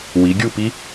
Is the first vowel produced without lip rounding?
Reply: yes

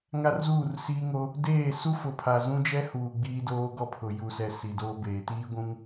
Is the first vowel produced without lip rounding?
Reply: yes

